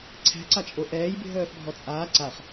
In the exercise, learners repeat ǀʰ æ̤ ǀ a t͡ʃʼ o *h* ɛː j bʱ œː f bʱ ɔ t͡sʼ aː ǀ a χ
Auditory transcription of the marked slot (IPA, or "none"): ʔ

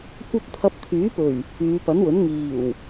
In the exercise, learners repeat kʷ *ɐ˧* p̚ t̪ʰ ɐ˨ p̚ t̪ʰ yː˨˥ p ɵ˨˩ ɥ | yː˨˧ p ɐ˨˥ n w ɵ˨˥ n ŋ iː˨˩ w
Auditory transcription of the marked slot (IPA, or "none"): ɐ˧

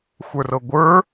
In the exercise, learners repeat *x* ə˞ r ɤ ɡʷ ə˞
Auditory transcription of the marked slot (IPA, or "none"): xʷ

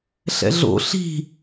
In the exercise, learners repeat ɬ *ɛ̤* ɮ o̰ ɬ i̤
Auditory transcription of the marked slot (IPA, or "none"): ɛ̰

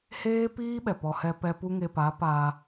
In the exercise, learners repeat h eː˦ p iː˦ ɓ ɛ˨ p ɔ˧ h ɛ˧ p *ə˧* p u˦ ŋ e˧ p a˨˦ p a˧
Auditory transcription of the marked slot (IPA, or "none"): ɛ˧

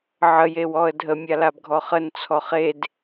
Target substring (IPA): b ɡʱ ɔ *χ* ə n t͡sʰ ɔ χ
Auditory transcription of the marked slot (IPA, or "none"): χ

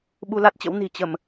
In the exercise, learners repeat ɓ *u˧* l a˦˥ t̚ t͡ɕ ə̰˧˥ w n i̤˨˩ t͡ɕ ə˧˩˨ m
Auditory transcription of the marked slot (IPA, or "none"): u˧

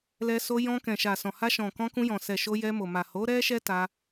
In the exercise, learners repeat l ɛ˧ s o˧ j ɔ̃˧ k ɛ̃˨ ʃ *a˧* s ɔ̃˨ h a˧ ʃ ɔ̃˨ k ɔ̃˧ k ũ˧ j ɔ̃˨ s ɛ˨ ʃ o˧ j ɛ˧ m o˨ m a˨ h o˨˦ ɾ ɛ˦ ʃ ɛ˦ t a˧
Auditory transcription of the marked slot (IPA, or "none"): a˨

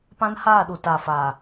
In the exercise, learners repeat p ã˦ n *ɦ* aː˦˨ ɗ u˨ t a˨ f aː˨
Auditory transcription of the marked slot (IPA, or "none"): h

